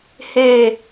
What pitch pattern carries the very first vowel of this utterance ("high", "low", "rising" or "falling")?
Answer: low